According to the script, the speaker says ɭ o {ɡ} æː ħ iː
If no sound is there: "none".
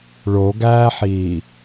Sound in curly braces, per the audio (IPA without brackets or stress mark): ɡ